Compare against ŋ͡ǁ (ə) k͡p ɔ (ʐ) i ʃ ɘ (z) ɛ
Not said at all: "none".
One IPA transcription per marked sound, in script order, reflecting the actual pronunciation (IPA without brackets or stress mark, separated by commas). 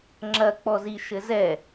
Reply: ɐ, z, z